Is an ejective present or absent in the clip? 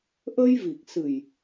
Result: absent